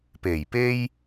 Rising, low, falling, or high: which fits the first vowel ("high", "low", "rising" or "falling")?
low